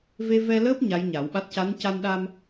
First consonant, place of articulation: labial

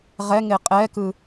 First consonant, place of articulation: uvular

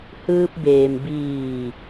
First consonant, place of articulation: glottal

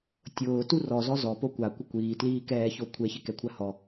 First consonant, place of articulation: alveolar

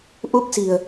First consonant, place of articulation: glottal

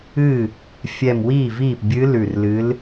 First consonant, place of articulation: labial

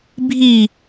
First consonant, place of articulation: labial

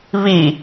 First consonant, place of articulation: labial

